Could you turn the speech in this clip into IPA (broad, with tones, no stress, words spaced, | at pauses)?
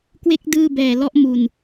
kwe˦˥k̚ dɯː˥˩bɛː˨˩lɔ˦˥ʔ mu˨˩n